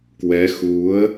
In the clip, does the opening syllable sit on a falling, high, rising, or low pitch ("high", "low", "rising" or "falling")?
rising